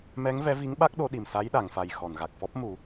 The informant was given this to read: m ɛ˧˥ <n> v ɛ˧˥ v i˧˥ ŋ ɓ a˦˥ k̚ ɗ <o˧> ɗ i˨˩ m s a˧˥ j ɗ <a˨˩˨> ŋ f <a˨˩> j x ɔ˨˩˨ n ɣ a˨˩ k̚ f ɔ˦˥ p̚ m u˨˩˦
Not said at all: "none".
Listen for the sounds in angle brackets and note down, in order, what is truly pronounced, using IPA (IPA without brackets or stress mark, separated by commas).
ŋ, o˧, a˨˩˨, a˨˩